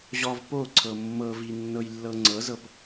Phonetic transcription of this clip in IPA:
ʑ ɔ v p o ǀʰ ɤ mː ɤ v i nː ɤ j lː ɤ ŋ͡ǀ ɤ z ɤ p

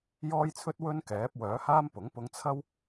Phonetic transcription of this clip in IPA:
j ɔː˥ j t͡sʰ ɵ˥ t̚ w ɵ˥ n k ɛː˨˥ p̚ w œː˨˥ h aː˥ m p ʊ˨˥ ŋ p ʊ˧ ŋ t͡sʰ ɐ˥ w

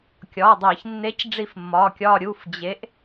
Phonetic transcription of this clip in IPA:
kʲ ɒː˩˧˩ dˤ iː˧˩˧ ç nː e˨˥ c ɖ͡ʐ i˦˨ f mː ɒː˩˧˩ kʲ ɒː˦˨ ɾʲ u˩˧˩ f d͡ʑ e˨˥ ʔ

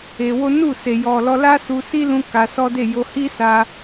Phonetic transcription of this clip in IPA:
e˧ w o˦ n u˦˨ s e˨ j ɔ˨ l ɔ˧ l a˦ s u˧ s i˦ l ũ˧ k a˧ s ɔ˦ d e˦˨ j o˧ h i˦ s a˧

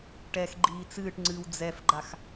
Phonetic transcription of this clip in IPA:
ʈ ɛ x ɡ͡ǃ iː t͡s ɨː ʈ ŋ͡ǀ ɨː w d͡z ɛ f ɡ͡ǃ a x

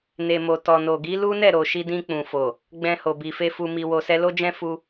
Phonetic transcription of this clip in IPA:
n e˨ m o˨ t ɔ˨ n o˨ ɡ i˨˦ l u˦ n ɛ˦˨ ɾ o˨ ʃ i˧ d ĩ˧ k͡p ũ˨ f o˨ | ɡ͡b ɛ̃˧ h o˨ b i˨ f e˧ f u˧ m i˧ w o˧ s ɛ˧ l o˦ d͡ʒ ɛ̃˦ f u˧

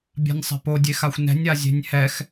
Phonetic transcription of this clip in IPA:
bʲ a̤ nʲ sˤ ɛ̤ p o dʲ e x a xʷ n ɛ̤ nʲ a zʲ e̤ nʲ h ɛ x

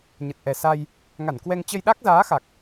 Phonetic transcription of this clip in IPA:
ɲ ə˨˩ t̚ ʔ ɛ˨˩ s a˧ j | ŋ a˧˩ n k w ɛ˧ ŋ t͡ɕ ə˧ j ɗ a˦˥ k̚ z aː˨˦ x a˨˩ k̚

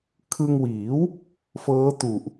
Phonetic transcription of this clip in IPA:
kʰ ɯ˧ ŋ w iː˩˦ w | f ɤː˦˥ t u˨˩ ʔ

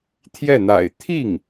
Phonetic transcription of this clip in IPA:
t̪ʰ j ɛ˥˩ n̪ a̰˨˩ ɪ̯ t̪ʰ i˥˩ ŋ

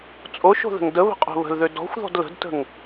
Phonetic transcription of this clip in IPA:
t͡sʼ o ʃ o̤ ð ə̤ ŋ d ə β ə̤ qʼ o̤ β ə̤ l ð ø d ɔ̤ xʷ ð ɔ̤ d l ə̤ d t ə̤ ŋ

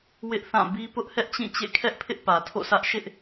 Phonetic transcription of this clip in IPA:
w ɪ˦ ʔ θ ã˦˨ b i˦ p ʊ˦ ʔ h ɛ˦ ʔ t͡ɕ ĩ˦˨ t͡ɕ ḛ˦˨ kʰ ɛ˦ ʔ pʰ ɪ˦ ʔ p ä˨ tʰ o̰˦˨ sʰ ä˦ ʔ ʃ ɪ˦ ʔ

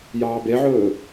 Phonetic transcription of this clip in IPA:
j ɑː b e ʕ ɵː

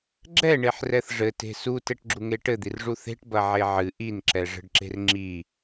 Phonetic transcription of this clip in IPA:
ɡ͡ǁ ɛ ɳ e ħ r ɛ θ ʐ ɘ t e̤ s u t ɛ ʈ ɡ͡ǁ u ŋ e ʈ ɘ d̪ i r ʐ u θ e̤ ʈ b ɐ ʕ e ʕ ɨ ʔ i n ǁ ɛ ʐ ə̤ ɖ ǁ e̤ r ŋ͡ǁ i

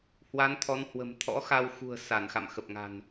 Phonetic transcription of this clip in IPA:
h w a˨˦ n t̪ʰ ɔ˨˦ n h w ə̤˨˩ m t̪ʰ ɔ̰˧˥ x a˧ w x ṳ˨˩ ə̯ s a˧˩ n x a̰˧˨ m x ə˨˩ p̚ ŋ a̤˨˩ n

